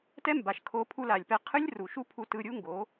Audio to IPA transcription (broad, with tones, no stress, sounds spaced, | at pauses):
t ɛ˦ m b a˨ ʃ kʰ o˧ pʰ u˧ l a˨ lʲ p ɛ˧ qʰ ɯ˦ lʲ r u˨ ʃ u˦ pʰ u˧ t ɯ˧ ɾʲ u˦ ŋ ɡ o˨˦